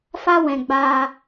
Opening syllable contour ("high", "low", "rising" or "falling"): high